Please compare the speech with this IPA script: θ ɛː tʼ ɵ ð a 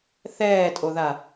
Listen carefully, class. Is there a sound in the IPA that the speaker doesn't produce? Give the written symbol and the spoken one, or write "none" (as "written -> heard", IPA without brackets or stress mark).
ɵ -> o